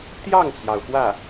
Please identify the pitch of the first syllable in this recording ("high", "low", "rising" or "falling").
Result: falling